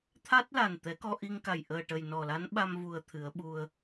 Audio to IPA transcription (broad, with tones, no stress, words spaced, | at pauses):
t̪ʰa˦˥t̚la˨˩n t̪ɛ˨˩˦kɔ˧ʔi˧ŋka˨˩j ʔəː˨˩ʈə˨˩jnɔ˨˩la˧˥n ɓa˧mvu˨˩ə̯ t̪ʰɨ˨˩˦ə̯ɓu˧ə̯